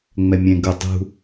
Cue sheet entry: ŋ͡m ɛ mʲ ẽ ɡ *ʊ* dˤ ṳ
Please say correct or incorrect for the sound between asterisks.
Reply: correct